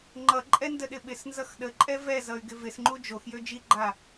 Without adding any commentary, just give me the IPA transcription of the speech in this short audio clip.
ŋ͡ǃ ʌ ǃʼ ɛ n d ə ɗ ɪ ɓ ɪ s n z ʌ x ɗ ə ǃʼ ɛ v ɛ z ʌ y̯ ɡ ɪ v ɪ s ŋ͡ǃ u d͡ʒ o x j ø d͡ʒ i ɡ͡ǃ a

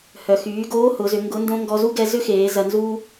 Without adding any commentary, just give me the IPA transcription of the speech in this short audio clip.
h œ˩ x yː˩˧ ɡ oː˧˥ h ʊ˩˧ z ʏ˩˧ ŋ ɡ ʊ˧˥ n d õ˥ ŋ ɡ ɔ˧ z u˥ ɡ ɛ˧ z ʏ˥ x eː˩˧ z ɐ˧ n z uː˥

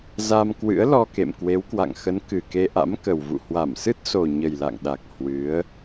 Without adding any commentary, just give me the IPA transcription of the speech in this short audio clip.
z a˧ m k w ɨ̰˧˥ ə̯ l ɔ˧ k ḛ˧˨ m k w e˨˦ w k w a̰˧˨ ŋ x ə˨˦ n k ɨ˨˩ k e˧ ʔ a̰˧˥ m k ə˨˩ w v ṵ˧˨ h w a˧˩ m s ɨ˦˥ t̚ s o˨˩ ɲ ə˨˩ j l a̰˧˨ ŋ ɗ a˨˩ k̚ h w ɨ˨˦ ə̯

